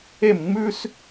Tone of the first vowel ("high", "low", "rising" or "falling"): falling